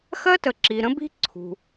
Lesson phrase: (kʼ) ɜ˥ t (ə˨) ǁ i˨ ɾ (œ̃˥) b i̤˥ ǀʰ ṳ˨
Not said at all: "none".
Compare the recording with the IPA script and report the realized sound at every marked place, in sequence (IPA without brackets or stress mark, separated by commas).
x, ə˨, ə̃˥